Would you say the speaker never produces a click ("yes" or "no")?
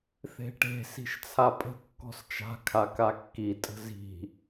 yes